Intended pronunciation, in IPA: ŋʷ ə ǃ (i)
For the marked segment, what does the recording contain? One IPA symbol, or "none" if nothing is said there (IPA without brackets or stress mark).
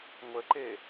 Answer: e